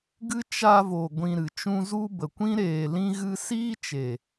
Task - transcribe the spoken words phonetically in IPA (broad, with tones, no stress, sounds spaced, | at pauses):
ɡ ɨ˦ t͡ʃ a˧ v o˨ ɡʷ ĩ˧ ɾ ɨ˨ t͡ʃ ũ˦ z u˦ b ə˨ kʷ ĩ˦ ɾ eː˨ l ĩ˧ ɣ ɨ˧ s iː˦ t͡ʃ e˨